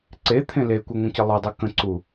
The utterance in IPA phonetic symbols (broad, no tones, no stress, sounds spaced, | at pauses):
ǀ e t̪ʰ ẽ l e kʷ ɯ ŋʷ ə̃ c ɪ lˠ i dˤ ɯ k ə̃ ǀ u